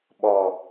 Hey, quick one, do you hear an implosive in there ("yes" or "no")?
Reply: yes